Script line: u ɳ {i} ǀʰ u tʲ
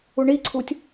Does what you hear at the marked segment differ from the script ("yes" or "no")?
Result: no